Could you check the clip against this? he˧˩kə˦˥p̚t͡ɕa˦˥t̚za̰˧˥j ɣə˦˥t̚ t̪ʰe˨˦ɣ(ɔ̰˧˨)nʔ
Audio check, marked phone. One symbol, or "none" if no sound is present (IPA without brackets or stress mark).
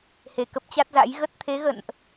ə̰˧˨